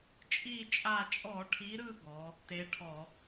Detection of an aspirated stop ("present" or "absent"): present